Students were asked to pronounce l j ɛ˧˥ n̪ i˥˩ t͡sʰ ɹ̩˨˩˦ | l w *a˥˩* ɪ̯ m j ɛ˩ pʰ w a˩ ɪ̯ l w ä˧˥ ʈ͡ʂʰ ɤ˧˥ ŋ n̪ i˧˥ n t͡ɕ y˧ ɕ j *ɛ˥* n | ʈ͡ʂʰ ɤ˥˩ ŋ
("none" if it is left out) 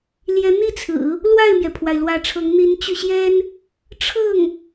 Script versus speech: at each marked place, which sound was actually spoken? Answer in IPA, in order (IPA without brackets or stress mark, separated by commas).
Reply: a˥˩, ɛ˥